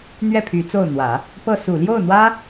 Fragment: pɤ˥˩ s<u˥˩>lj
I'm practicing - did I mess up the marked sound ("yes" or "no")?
yes